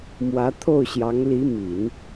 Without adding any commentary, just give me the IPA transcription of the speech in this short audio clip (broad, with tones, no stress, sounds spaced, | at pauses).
m w ä˧˥ t̪ʰ o˥˩ ʊ̯ ɕ j ɑ˧˥ ŋ l i˧˥ m i˨˩˦ n